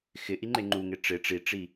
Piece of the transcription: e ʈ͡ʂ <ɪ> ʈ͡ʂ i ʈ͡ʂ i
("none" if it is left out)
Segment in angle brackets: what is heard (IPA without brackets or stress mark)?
ɪ